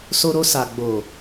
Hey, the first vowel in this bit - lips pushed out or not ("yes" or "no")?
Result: yes